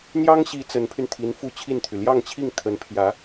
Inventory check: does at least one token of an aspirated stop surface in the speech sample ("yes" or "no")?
yes